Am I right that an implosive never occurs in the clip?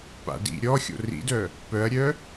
yes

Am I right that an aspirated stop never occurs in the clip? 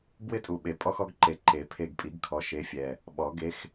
no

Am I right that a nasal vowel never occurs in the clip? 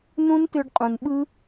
no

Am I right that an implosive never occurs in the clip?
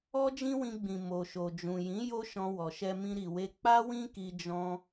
yes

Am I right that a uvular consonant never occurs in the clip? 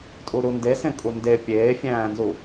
yes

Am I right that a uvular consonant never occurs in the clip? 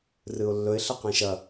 no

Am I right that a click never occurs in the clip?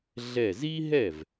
yes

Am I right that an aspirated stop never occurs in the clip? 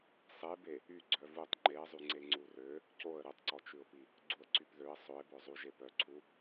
no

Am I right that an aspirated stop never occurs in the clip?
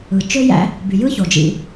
yes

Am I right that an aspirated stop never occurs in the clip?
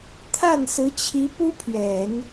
no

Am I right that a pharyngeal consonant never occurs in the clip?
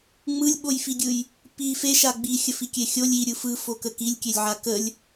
no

